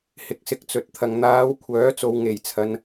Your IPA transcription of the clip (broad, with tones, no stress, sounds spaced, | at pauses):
h ɪ˨˥ k̚ s ɪ˨˥ k̚ t͡s ɵ˨ t̚ t̪ʰ ɐ˨ ŋ n̪ aː˨˧ w kʷʰ œː˨˥ t͡s o˨ w ŋ e˨˩ j t͡sʰ ɐ˨ n